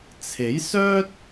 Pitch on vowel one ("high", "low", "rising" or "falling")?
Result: rising